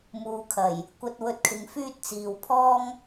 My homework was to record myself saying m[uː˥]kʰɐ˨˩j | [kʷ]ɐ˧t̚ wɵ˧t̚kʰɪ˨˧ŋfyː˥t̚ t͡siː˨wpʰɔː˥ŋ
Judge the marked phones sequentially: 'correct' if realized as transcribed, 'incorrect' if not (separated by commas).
incorrect, correct